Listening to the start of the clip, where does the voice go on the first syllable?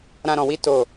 high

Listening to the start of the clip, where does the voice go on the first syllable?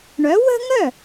rising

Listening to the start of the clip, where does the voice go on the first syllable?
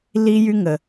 high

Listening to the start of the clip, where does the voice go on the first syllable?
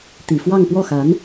low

